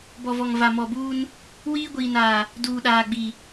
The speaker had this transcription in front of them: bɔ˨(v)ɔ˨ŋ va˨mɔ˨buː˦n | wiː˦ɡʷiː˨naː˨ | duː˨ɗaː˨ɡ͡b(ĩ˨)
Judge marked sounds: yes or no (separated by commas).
yes, no